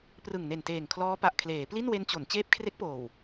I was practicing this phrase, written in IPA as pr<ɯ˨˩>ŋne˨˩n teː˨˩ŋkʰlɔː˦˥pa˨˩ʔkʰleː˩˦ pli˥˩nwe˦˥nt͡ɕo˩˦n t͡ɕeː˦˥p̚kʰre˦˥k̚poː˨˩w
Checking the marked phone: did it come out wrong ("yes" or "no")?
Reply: no